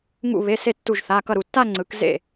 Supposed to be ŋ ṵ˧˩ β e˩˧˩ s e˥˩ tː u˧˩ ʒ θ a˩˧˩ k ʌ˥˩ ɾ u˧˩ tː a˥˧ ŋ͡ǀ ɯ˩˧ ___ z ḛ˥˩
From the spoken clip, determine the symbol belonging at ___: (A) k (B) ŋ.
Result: A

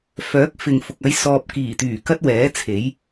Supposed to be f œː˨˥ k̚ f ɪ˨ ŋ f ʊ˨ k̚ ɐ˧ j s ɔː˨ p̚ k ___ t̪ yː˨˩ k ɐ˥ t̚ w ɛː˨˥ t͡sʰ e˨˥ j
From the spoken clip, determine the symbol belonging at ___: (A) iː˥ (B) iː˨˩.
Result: B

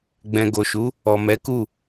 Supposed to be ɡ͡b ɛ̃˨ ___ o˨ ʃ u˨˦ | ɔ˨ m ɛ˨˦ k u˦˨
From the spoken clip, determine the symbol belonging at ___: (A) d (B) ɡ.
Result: B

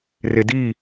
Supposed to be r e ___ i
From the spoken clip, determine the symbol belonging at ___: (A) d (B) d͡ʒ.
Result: A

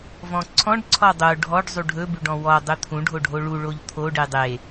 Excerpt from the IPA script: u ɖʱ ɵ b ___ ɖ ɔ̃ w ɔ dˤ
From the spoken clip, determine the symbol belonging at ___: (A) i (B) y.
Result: B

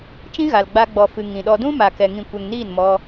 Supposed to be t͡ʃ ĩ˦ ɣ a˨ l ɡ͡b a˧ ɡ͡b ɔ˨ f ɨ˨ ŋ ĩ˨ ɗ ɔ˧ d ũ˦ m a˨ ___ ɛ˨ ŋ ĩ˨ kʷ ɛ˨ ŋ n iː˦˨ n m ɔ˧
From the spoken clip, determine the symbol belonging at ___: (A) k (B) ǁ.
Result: A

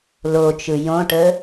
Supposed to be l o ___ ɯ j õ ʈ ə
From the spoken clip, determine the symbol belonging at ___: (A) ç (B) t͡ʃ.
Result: B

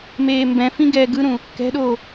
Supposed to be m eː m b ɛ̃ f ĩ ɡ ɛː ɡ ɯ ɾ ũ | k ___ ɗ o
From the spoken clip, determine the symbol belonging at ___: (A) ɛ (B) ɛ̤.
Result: B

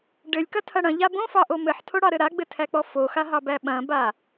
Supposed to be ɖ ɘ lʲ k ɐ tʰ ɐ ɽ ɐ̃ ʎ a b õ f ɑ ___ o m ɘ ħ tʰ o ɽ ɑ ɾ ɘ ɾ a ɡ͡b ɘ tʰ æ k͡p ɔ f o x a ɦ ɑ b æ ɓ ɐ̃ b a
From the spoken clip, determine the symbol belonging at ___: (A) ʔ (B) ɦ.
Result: A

